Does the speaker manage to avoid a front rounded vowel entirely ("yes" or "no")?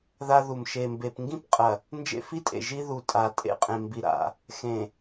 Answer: yes